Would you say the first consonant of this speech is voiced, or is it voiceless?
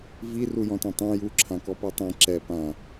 voiced